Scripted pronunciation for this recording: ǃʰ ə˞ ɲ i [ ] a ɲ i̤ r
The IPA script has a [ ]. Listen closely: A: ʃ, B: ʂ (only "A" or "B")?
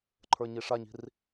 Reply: B